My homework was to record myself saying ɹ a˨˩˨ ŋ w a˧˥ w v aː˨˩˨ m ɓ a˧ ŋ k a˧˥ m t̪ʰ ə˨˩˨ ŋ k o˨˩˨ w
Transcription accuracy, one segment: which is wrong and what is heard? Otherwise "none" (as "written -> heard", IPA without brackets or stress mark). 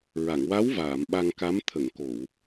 none